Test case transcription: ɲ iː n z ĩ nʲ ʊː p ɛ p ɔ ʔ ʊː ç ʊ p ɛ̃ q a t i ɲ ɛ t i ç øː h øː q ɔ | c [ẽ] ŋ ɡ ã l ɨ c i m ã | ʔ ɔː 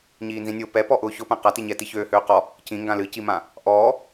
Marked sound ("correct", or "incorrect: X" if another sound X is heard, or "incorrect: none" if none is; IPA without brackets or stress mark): incorrect: ĩ